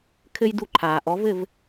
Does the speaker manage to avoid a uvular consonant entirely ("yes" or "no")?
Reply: yes